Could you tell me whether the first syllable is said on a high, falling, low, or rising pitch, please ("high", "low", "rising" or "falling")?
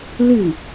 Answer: falling